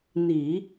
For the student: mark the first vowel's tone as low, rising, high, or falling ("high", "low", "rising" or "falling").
low